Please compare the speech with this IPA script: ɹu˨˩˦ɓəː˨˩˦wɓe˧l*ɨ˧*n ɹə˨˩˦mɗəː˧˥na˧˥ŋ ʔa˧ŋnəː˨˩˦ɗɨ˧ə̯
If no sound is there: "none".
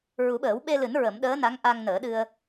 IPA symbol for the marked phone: ɨ˨˩˦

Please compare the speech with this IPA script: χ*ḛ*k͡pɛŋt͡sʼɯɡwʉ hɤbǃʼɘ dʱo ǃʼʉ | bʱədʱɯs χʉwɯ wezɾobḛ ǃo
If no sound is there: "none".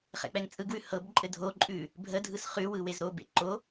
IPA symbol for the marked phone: ɛ̰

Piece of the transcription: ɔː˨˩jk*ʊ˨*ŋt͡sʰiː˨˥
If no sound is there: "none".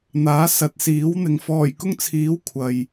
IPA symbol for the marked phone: ʊ˥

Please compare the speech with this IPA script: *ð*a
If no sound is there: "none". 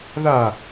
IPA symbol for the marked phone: ð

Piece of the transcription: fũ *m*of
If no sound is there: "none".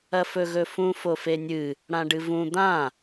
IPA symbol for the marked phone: f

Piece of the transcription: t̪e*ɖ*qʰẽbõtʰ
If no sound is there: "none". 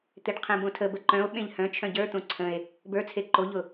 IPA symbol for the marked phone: ɖ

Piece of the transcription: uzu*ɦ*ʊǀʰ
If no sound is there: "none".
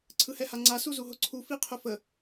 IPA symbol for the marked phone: ɦ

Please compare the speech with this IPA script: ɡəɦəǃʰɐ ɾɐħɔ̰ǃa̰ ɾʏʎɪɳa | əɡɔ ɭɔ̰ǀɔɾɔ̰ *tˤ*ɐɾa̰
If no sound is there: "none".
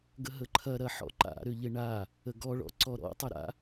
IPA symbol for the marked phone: tˤ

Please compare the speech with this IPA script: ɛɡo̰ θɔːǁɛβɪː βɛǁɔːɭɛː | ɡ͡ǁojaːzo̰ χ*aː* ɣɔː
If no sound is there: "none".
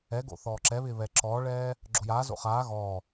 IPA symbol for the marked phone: aː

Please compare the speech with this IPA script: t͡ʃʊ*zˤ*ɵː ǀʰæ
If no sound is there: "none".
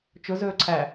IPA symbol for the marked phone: z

